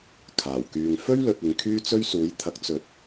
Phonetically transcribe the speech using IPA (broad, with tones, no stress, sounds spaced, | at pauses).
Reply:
kʰ aː˨˩ w k yː˧ ŋ f ɵ˥ ɥ l ɵ˨ t̚ ɪ˨˧ ŋ kʰ yː˥ t͡s ɵ˥ ɥ s uː˨˥ j t̪ʰ ɐ˨˥ k̚ t͡s ɵ˨ t̚